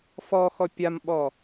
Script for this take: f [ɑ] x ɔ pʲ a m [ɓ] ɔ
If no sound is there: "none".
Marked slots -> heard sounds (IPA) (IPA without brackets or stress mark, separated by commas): ɔ, ɓ